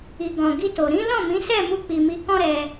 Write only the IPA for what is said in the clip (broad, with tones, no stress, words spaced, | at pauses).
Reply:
i˨ɡɔ̃˨ɡi˧to˨ ɾĩ˨˦ lɔ̃˦˨mĩ˨˦ sɛ˦˨ mu˧k͡pi˨mi˨˦ kɔ̃˦ɾɛ˧